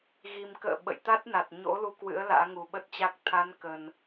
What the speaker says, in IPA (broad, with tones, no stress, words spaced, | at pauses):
ɣi˨˩mkə̰ː˧˨ ɓə̰˧˨jt̪a˦˥t̚na˨˩t̚ ɲo̰˧˥ lu˧kwɨ̰˧˥ə̯ la̰ː˧˥ŋu˨˩ɓə˦˥t̚t͡ɕa˦˥k̚ t̪ʰa˨˦nkə˨˩n